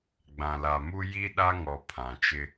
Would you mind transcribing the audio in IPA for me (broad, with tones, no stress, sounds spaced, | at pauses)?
ɡ͡b ã˨ l a˨ m u˦ j i˦ ɗ a˦ ŋ ɔ˨ pʰ ã˨ t͡ʃ ɪ˦